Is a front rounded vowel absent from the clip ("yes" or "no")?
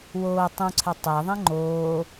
yes